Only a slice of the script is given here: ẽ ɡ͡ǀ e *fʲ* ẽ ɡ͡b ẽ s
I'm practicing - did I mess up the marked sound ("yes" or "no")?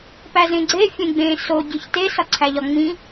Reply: no